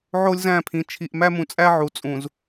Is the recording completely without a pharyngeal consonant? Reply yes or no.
no